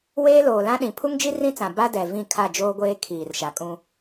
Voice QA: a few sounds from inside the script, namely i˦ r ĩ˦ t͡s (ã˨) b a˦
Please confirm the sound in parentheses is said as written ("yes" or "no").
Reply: yes